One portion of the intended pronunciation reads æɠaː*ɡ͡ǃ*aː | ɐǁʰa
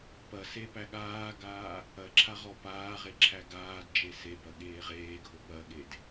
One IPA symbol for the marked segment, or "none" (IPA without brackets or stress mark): ɡ